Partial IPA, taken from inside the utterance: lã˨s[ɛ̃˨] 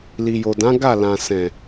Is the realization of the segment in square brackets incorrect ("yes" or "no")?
no